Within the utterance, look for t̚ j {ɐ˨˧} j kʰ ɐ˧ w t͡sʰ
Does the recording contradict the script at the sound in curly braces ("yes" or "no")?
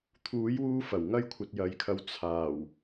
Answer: no